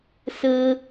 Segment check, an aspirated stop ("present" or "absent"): absent